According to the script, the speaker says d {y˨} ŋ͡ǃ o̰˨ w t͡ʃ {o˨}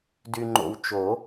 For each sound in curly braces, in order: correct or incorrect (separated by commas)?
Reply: correct, incorrect